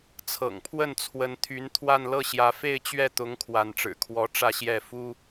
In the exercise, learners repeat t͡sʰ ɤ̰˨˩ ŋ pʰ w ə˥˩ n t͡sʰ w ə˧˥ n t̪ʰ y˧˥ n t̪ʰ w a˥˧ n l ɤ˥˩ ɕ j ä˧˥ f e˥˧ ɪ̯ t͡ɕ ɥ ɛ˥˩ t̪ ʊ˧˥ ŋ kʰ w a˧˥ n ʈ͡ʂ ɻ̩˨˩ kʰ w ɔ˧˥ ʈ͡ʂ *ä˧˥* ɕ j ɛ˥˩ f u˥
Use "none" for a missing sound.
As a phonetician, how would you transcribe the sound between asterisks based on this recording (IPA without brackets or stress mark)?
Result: ä˥˧